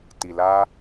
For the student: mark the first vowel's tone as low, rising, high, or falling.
low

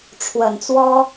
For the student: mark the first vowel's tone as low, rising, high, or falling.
low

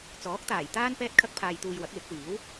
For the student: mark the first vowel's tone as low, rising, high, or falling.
rising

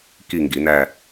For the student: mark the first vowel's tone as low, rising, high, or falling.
falling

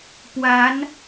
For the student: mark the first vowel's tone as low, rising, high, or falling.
rising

